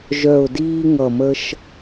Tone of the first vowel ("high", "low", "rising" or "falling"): low